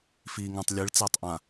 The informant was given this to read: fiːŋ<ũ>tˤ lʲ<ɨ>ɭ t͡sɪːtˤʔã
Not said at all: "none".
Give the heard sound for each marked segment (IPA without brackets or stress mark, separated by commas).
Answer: ũ, ɨ